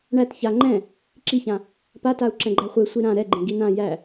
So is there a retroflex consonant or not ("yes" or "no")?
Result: yes